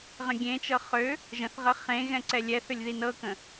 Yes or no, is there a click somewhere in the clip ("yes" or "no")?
yes